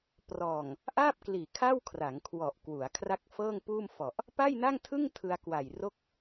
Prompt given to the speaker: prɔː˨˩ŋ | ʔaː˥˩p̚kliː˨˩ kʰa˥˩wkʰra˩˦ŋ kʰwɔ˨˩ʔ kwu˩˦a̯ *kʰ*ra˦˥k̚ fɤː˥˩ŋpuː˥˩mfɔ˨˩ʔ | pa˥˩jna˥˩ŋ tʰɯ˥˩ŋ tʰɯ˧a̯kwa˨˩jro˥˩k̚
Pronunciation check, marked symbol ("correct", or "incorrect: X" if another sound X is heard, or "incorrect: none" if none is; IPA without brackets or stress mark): correct